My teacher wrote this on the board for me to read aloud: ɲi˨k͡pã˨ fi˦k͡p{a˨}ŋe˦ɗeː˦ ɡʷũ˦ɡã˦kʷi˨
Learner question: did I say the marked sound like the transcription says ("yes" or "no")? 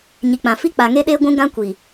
yes